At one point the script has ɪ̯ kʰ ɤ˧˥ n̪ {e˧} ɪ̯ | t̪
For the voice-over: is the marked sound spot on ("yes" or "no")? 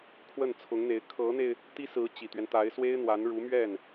yes